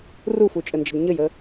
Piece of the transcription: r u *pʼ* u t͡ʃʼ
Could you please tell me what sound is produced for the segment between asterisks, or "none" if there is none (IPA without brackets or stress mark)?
f